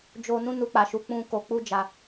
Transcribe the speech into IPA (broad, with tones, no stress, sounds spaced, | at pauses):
d͡ʒ o˧ n ũ˦ n u˧ k͡p a˨ ʃ u˨˦ k͡p ũ˧ k o˧ k͡p u˦ d͡ʒ a˧